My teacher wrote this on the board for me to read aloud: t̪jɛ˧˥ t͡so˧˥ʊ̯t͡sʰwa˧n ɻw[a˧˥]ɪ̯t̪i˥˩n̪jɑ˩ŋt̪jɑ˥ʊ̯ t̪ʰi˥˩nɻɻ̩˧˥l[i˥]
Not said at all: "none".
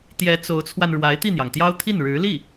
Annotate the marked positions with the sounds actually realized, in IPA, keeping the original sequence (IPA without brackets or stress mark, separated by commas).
a˧˥, i˥˩